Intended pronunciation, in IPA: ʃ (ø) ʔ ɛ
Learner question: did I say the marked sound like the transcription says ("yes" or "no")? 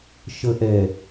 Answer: no